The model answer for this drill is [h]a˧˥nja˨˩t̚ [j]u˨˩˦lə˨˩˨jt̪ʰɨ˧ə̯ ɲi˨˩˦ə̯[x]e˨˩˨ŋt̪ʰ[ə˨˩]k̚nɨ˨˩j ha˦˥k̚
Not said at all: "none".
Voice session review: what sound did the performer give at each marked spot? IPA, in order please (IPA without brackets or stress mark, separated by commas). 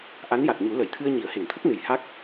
ʔ, ɲ, h, ə˦˥